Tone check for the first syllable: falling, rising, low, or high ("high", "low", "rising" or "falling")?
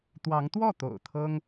rising